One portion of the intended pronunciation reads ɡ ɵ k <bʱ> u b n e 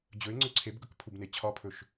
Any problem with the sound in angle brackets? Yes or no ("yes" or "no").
yes